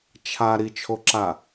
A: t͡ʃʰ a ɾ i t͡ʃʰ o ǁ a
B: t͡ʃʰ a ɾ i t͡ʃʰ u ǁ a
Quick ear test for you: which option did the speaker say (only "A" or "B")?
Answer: A